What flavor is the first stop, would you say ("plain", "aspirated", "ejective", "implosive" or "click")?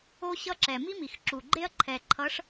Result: click